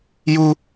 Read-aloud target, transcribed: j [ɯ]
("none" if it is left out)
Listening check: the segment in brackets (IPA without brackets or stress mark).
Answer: u